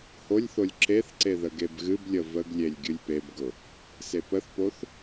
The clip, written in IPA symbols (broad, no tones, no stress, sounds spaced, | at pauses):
h o lʲ θ o lʲ ǁ e θ ǀ e ð ə ɡ e b ɣ ɨ b lʲ ə v ə ɡ lʲ e lʲ ɡʲ ɨ lʲ p e b ɡ ʊ | s e p ə θ p o θ